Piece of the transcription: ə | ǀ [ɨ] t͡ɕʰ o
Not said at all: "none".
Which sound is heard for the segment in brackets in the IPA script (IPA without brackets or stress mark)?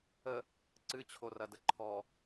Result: ɨ